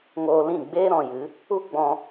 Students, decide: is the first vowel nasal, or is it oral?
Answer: oral